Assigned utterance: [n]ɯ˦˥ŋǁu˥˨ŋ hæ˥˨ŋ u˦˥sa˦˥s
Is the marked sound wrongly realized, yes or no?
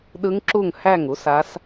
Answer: yes